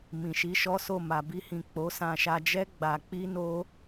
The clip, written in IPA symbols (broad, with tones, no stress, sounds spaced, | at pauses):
m ĩ˨ ʃ i˨˦ ʃ ɔ˦ s o˦˨ m a˨ b i˧ h ĩ˨ k͡p o˨˦ s ã˧ ʃ a˧ d͡ʒ ɛ˦ ɡ͡b a˧ k͡p i˦ n o˦